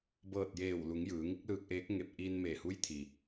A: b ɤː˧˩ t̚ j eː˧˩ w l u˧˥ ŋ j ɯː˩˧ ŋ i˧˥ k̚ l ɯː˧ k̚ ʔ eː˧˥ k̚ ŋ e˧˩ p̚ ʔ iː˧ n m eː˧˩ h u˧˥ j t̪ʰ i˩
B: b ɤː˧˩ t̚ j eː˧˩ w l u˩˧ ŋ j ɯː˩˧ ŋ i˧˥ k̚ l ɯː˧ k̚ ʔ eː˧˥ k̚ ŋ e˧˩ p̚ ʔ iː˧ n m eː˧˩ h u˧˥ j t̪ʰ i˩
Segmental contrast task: B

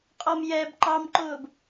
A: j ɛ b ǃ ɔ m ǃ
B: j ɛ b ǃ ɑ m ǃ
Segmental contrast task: B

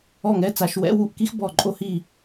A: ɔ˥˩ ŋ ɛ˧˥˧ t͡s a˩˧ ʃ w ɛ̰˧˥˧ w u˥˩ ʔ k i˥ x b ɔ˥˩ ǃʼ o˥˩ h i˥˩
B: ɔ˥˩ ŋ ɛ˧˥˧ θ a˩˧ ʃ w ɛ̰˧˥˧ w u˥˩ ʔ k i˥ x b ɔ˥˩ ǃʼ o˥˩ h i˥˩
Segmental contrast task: A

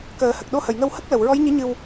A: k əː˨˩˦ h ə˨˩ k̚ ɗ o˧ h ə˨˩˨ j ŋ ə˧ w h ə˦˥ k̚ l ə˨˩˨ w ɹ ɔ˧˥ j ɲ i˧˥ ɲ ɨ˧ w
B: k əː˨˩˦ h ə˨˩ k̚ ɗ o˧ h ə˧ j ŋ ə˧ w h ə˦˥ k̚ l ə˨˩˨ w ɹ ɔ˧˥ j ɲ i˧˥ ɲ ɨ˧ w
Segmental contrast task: A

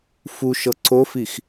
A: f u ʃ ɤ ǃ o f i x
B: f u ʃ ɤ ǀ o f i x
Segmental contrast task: B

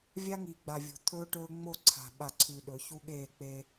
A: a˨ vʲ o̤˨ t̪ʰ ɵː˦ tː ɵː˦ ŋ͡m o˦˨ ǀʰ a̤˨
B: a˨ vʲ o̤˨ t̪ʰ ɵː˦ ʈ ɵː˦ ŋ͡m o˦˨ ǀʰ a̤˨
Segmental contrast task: B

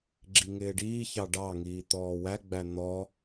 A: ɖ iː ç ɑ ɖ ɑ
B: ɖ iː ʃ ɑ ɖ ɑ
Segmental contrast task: A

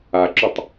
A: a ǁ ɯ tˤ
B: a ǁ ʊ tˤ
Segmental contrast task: B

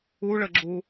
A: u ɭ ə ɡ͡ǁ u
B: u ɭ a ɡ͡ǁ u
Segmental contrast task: A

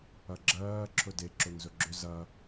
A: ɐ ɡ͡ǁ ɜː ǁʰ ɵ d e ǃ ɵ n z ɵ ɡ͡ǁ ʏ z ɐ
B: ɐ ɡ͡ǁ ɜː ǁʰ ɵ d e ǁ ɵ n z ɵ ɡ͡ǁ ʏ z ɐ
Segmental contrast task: B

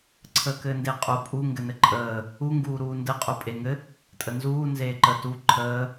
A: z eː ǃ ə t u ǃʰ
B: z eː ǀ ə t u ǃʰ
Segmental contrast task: A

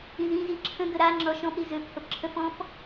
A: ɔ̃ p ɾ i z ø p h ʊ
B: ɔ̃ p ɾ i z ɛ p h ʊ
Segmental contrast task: A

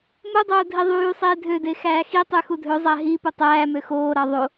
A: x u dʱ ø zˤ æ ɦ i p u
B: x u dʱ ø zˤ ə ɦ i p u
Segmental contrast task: A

